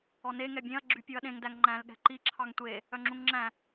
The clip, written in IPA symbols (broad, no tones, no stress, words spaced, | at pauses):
ɔne ŋɛbʲẽɐ̯ ɡ͡ǁypʲuɐ̯ɗẽŋ dæŋŋ͡ǃæ̃l ɠɛ̤ǃi ǁʰɑŋtʷe | œŋ͡ǁũŋŋ͡ǁæ̃